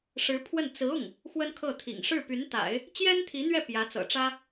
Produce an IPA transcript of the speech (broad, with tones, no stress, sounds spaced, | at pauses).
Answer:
ʂ ɻ̩˧˥ pʰ w ə˥˩ n t͡s ɹ̩˧˥ ʊ˥˩ ŋ | x w ə˥ n kʰ ɤ˥˩ t̪ʰ ḭ˨˩ ŋ ʂ ɻ̩˥˩ p y˧˥ n t̪ a̰˨˩˦ ɪ̯ | t͡ɕ j ɛ˥ n t̪ʰ i˧˥ n̪ ɥ ɛ˥˩ p j ä˧˥ t͡s ɤ̰˨˩ ʈ͡ʂ ä˥